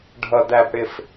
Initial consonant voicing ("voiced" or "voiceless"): voiced